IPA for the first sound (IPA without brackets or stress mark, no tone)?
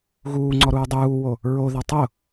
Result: ɣ